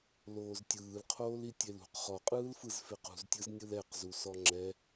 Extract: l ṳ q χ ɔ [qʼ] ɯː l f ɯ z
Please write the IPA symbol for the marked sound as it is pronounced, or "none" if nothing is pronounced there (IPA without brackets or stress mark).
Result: qʼ